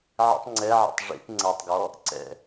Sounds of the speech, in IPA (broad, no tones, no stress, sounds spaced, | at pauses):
ʕ ḭ tˤ ŋ͡ǀ ɛ ʕ ḭ tˤ ʐ ḭ t ŋ͡ǀ ɐ tˤ ɡ ɔ | ǀ ɛ̰